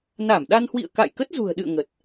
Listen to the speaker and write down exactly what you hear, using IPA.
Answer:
na˧˩mɗa˧nhwḭ˧˨ə̯ ka̰˧˨jkə˦˥t̚zṳ˨˩ə̯ɗɨ̰˧˨ə̯ ŋə˨˩t̚

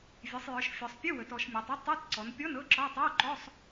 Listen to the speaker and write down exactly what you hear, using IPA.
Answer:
vʲe˩˧sˤjə˞˩˧ʃfʲɔ˩˧sˤ pʲɯ˧˥˧ wə˩˧tɔ˩˧ʃmʲɔ˩˧tˤ ə˧˥˧ tˤɯ˧˥˧t ǀɔ˩˧npʲɔ˧˥˧n ɤ˧˥˧ǁɔ˧˥˧ tˤe˧˥˧wǃɔ˧˥˧sˤ

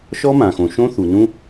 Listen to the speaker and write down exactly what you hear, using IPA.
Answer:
ʃɔ˦mã˨xõ˨ʃõ˦ θu˨nũ˦

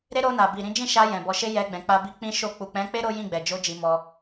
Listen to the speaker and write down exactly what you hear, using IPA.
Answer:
ɾe˦ ɾo˧na˨bi˨ ɾĩ˨˦d͡ʒĩ˦˨ʃa˧ jɛ̃˨ bɔ˨˦ʃe˦ jɛ˧ɡ͡bɛ̃˨k͡pa˧ bi˦k͡pĩ˦ʃo˦˨ k͡pu˨k͡pɛ̃˨˦k͡pe˦ ɾo˦ jĩ˦˨ɡ͡bɛ˨ d͡ʒo˧ d͡ʒi˧mɔ˧

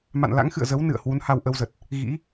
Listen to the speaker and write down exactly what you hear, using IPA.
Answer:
ma̰˧˨nla̰˧˥ŋxɨ̰˧˨ə̯ zə˨˦wnɨ̰˧˨ə̯ hwu˨˦nha˧wʔə˧wzə˨˩t̚ | ɣḭ˧˥

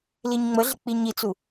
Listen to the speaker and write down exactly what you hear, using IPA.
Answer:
liɲŋ͡məɮɪ k͡piɲit͡su

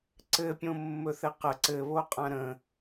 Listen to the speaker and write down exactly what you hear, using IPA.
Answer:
ǀɘpʲõ mːɵθɘqə ǀɘβoqʼã ɾə̃

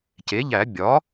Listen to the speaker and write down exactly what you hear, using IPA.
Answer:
ce˩˥ʎæ˨˩˦ bʲɒː˩˥

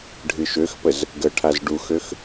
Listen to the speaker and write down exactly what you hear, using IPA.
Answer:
ɖʱɨʃøxpəz | ɡəʈʰaz ɖuxøx

